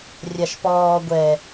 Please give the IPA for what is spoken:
rʲaʃpɔː ɡʷɛ

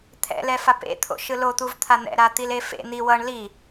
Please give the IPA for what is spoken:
t̪ʰɛ̰lɛfap ḛt̪ʰo̰ʃɯ lot̪uvt̪ʰa n̪ɛ̰ɾat̪ile fḛ n̪i wʌɳ li

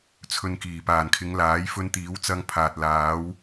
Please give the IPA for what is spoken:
t͡sʰɵ˧nkiː˨˩ paː˨˩nkʰɪ˨˧ŋ laː˨˥jfɵ˧n t̪iː˨˥wt͡sɐ˧ŋ pʰaː˨t̚laː˨˥w

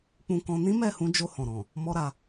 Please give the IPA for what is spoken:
k͡pũ˧kɔ̃˧ nĩ˦mɛ˦˨hũ˨˦ d͡ʒo˧hɔ̃˨ ɾɔ̃˨ | mɔ˦ɾa˧

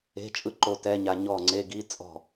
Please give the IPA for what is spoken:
e̤˧˥˧t͡ʃʼɯ˥˩ǃo˧ tɛ˧˥˧ɲa˧ɲɔ˥˩ ŋ͡ǀe˧˥˧ɡi˧˥˧t͡sʼɔ̤˥˩

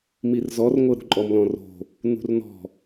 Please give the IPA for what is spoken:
mirzɔrŋʷɤɾṳ ǃʼɔmlɔ̃ro̤ | nṳrnɔ̤

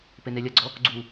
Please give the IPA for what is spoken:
penelʲɐɡ͡ǀɔ | ɡ͡ǀu

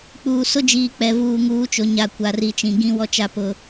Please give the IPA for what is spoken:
k͡puː˨sʊ˦d͡ʒiː˨ k͡pɛ˨ vuː˨ŋuː˨˦t͡ʃo˨ ɲa˨ kʷa˨ri˨t͡ʃĩ˨ ɡĩ˦wɔ˦t͡ʃa˦pʊ˦

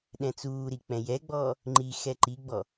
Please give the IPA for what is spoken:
ɗɛ̃t͡suːɾik͡pɛ̃ jɛɡ͡bɔː | ŋ͡ǃi xɛǃiɡ͡bɔ

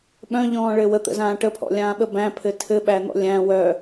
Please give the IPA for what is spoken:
ɓœ̃ʎɔ̃ːɭɘ wət̪ə̰zãː ʈəpʰɔ̰lʲãːɓə bæ̃pʰɘ tʰɘɓæn̪ɔ̰ lʲæ̃ wœ

